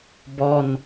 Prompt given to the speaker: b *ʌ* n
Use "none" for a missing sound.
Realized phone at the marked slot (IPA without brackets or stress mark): ɔ